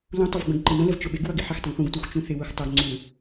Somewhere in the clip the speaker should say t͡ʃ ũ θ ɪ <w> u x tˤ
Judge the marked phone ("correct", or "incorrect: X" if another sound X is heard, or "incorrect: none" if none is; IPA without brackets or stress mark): correct